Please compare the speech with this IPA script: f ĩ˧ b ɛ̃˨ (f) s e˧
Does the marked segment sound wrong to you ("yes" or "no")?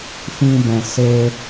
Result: yes